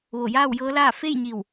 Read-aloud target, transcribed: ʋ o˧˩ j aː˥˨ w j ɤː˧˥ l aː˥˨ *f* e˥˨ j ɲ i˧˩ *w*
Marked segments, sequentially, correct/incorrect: correct, correct

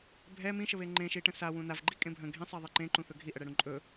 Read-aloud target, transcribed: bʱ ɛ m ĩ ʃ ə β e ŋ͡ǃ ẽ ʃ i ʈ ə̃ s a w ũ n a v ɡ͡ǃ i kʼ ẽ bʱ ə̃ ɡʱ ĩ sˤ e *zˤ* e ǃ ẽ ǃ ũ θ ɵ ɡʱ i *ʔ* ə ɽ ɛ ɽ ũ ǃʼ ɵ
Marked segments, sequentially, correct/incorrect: incorrect: ðˤ, correct

